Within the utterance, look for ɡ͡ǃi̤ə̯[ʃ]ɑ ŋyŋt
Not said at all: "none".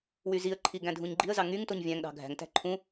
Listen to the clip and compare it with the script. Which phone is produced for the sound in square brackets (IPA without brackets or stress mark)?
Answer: z